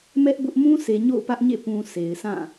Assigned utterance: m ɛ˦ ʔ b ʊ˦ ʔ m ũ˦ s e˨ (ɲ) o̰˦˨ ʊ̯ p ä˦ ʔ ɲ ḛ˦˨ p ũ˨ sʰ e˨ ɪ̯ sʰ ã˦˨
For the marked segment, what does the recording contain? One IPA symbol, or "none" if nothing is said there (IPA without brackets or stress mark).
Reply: ɲ